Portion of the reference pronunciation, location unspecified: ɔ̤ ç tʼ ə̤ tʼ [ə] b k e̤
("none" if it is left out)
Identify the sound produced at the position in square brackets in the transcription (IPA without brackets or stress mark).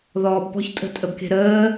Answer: ə